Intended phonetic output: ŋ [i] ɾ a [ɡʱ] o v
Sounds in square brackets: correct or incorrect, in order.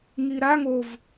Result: correct, incorrect: ŋ

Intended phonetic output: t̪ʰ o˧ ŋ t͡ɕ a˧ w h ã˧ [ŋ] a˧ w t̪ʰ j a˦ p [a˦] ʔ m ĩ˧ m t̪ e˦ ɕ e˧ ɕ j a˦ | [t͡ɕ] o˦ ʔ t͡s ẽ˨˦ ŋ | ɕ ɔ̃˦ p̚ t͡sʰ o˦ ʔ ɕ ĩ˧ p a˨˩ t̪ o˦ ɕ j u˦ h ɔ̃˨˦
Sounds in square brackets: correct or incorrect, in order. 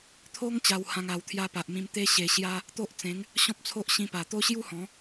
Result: correct, incorrect: a˨, incorrect: t̪

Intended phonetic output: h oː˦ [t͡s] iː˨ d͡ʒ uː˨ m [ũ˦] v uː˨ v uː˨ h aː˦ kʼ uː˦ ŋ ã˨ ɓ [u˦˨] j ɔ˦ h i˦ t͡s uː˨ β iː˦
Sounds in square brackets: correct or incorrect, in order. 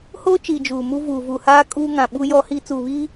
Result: incorrect: t͡ʃ, incorrect: u˦, incorrect: u˦

